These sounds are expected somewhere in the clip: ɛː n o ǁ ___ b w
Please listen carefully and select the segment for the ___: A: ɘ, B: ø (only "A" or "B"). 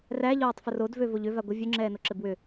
A